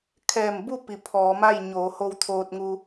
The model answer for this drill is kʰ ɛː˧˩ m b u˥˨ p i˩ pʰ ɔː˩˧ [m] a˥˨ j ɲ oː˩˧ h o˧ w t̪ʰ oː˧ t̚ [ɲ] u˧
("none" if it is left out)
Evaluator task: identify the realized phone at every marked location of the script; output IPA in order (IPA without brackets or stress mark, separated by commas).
m, ŋ